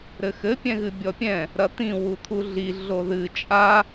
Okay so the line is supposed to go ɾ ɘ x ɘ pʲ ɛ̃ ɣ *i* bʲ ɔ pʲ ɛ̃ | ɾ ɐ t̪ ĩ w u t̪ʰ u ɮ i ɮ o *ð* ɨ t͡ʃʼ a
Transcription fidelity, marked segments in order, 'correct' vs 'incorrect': incorrect, correct

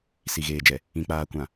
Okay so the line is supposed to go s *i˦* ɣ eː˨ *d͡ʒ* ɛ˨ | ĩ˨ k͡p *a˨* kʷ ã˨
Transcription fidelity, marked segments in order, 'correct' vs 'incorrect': incorrect, correct, incorrect

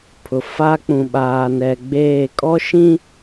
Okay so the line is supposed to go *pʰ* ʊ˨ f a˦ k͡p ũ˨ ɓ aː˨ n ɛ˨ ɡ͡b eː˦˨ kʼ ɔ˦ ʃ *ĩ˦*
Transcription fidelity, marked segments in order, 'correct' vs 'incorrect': correct, correct

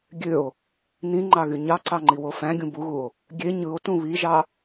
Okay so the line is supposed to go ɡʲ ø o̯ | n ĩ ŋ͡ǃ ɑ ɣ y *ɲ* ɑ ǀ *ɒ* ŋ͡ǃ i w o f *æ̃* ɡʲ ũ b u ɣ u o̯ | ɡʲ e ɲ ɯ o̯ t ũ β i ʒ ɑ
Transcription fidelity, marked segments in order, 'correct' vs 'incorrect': correct, incorrect, correct

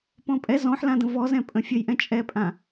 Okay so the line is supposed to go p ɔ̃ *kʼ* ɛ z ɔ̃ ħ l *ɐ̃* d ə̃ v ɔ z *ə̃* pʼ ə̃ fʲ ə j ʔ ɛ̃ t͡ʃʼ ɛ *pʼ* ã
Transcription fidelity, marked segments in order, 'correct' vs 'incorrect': incorrect, incorrect, incorrect, correct

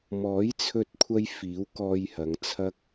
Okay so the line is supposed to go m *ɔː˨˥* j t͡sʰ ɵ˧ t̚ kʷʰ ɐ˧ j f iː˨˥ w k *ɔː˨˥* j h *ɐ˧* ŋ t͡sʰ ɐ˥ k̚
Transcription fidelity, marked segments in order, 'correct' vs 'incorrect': correct, incorrect, incorrect

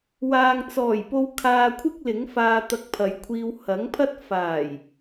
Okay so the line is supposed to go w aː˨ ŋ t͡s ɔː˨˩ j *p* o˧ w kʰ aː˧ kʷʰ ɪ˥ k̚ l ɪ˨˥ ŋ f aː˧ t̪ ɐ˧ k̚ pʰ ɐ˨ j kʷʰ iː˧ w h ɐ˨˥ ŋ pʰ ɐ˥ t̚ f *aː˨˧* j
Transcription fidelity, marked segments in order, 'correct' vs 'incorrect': correct, incorrect

